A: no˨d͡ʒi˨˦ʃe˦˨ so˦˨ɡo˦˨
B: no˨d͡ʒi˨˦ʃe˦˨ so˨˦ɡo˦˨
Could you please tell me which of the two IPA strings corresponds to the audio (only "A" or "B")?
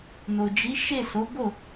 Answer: B